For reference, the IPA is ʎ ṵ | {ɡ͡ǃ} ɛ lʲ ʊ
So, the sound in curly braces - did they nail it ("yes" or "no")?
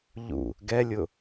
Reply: no